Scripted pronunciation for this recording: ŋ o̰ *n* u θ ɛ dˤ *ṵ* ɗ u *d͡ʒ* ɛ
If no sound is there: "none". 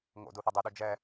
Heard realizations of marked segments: d, u, d͡ʒ

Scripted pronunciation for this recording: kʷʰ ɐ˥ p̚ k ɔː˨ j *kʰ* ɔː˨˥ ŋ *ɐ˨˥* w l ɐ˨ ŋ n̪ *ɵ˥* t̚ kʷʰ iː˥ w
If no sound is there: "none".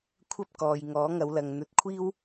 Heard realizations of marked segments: ŋ, ɐ˨˧, ɵ˨˥

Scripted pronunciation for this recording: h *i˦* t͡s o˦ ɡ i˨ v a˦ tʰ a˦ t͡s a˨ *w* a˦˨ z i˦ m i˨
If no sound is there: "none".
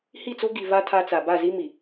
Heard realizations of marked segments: i˦˨, b

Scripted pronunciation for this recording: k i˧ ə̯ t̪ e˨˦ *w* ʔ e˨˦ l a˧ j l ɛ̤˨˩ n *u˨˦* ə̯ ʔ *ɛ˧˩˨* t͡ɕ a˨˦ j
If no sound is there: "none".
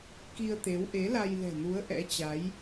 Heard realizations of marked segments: w, u˨˦, ɛ̰˧˥

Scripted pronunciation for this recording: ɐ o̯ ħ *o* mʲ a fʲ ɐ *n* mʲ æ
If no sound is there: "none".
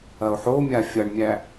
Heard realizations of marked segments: o, ɳ

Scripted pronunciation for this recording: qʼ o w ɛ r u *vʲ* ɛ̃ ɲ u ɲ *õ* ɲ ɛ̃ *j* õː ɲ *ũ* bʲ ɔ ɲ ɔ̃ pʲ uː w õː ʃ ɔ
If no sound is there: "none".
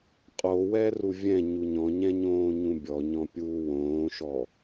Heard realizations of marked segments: vʲ, ɔ̃, ɲ, ũ

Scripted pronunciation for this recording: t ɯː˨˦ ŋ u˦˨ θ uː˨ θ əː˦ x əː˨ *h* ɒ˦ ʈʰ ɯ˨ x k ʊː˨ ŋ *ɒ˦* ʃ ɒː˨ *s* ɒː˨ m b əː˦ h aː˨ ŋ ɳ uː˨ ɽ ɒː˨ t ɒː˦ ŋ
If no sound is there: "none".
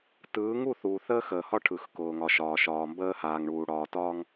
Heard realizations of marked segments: h, ɒ˨, ʃ

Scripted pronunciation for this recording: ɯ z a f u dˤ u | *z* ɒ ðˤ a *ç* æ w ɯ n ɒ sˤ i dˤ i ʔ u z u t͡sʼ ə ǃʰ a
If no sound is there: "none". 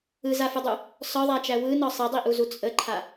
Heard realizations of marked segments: s, t͡ʃ

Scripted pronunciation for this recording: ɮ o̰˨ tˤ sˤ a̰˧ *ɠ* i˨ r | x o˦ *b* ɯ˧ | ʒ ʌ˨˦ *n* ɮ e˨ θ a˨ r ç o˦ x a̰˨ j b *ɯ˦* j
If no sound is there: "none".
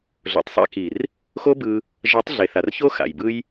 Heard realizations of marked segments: k, b, tˤ, ɯ˦

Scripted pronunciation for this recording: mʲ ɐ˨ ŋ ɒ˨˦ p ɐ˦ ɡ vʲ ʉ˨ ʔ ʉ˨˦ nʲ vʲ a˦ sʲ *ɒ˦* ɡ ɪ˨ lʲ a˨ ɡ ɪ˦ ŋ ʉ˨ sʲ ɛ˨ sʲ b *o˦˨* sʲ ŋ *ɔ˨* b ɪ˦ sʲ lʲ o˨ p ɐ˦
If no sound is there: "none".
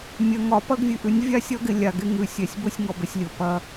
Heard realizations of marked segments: ɒ˦, o˦, ɔ˨

